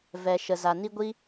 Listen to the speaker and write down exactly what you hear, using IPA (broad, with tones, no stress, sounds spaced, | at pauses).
v ɛ˨ ʃ ə˨ z a˨ n i˦ ɡʷ i˦